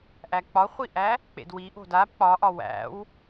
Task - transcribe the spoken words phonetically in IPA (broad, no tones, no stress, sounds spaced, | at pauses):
ʔ æ k͡p ɒ χʷ i ʔ æ | k͡p ḛ d w i ʔ o̤ d a b k͡p ɒ ʔ ɒ w æ̰ w